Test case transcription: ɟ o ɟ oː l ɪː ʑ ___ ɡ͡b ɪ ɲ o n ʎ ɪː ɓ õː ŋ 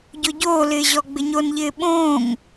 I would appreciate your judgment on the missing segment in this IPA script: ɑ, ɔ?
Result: ɔ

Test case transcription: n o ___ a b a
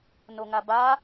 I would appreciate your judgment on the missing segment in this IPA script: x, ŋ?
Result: ŋ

